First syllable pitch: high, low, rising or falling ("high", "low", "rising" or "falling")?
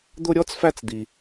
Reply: high